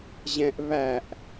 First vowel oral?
no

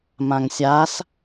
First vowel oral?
no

